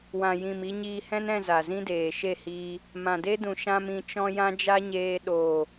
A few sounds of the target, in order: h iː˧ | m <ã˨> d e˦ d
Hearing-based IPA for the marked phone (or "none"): ã˨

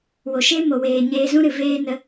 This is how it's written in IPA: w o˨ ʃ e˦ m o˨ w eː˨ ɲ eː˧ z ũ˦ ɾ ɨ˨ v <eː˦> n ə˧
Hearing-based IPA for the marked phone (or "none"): eː˦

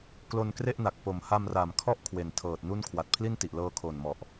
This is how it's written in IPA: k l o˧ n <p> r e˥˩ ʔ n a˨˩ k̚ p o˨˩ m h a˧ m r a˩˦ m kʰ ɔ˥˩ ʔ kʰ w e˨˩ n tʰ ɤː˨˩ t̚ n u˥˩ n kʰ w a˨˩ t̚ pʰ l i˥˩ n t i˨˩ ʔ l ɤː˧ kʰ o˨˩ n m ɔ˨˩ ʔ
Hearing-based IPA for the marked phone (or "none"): k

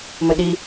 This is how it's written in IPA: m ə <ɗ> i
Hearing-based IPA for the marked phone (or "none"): ɗ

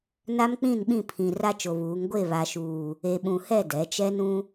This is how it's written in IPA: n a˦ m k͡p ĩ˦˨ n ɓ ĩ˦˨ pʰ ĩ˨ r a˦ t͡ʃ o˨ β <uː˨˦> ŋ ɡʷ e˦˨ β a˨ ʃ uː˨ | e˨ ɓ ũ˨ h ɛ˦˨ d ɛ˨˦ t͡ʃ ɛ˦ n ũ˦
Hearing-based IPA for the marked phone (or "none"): uː˨˦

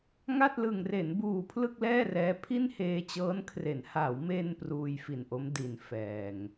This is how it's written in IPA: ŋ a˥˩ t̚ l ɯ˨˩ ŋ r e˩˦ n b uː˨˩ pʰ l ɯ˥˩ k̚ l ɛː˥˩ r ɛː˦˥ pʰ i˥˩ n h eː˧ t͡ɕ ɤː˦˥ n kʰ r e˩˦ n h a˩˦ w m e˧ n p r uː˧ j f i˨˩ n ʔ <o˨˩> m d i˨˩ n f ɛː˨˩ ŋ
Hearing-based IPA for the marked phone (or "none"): o˦˥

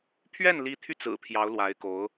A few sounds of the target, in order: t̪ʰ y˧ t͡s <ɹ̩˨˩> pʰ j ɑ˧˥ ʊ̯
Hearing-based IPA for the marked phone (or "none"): ɹ̩˨˩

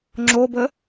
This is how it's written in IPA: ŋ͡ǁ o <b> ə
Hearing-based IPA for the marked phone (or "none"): b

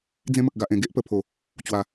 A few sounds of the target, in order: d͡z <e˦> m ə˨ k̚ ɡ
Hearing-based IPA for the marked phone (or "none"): ẽ˦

